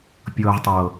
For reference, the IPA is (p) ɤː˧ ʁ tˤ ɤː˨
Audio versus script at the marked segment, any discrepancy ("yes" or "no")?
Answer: yes